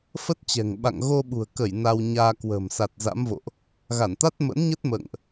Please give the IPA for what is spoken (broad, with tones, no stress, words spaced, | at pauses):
fə˦˥t̚t͡ɕɛ̤˨˩ŋɓa̰˧˨ŋ ɣo˧ɓṳ˨˩ə̯kə˧˩j na˧wɲaː˧ kwə̤ː˨˩msa˨˩t̚ za̰˧˥mvo̰˧˨ʔ | ɣa˧˩nt̪a˦˥t̚mə̰˧˥nɲə˦˥t̚ mə̰ː˧˨ŋʔ